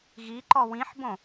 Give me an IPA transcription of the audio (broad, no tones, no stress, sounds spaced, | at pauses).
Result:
ɣ i ǃ ɔ w ĩ ħ b õ